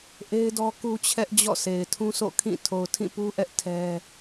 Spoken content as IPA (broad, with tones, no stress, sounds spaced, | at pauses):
ʔ e˦ ɪ̯ d ɔ˦ k u˦ t͡ɕʰ ɛ˦ ʔ d͡ʑ ɔ̰˦˨ s e˨ ɪ̯ tʰ ũ˦ s o̰˦˨ kʰ ĩ˦˨ tʰ o˨ ʊ̯ tʰ ĩ˦˨ p u˦ ʔ ɛ˦ ʔ tʰ ɛ˦